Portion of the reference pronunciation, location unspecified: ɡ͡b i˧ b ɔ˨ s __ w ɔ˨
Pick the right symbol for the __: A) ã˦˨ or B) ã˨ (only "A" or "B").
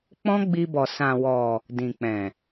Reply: B